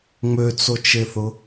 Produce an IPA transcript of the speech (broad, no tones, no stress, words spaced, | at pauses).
ŋ͡møt͡sot͡ʃeθʊ